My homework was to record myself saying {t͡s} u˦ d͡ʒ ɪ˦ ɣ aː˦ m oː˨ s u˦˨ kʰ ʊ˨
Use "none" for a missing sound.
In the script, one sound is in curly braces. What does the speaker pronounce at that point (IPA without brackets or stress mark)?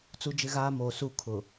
t͡s